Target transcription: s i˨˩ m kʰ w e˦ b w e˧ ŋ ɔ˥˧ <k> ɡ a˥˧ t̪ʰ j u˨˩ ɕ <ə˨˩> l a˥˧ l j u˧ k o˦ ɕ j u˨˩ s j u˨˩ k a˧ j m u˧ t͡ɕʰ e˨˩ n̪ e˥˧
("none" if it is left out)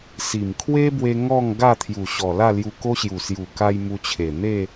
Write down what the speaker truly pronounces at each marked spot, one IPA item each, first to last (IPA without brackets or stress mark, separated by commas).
ŋ, ɔ˨˩